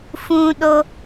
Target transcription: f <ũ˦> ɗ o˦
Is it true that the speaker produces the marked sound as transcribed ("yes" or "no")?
yes